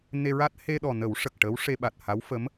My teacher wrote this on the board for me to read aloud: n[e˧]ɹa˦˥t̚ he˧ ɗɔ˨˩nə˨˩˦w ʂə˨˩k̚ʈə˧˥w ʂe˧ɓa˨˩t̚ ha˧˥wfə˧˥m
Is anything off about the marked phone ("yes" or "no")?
no